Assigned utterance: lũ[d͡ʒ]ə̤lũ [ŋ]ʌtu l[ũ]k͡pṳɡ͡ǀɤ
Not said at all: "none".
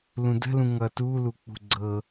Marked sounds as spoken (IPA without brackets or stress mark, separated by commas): d, ŋ, u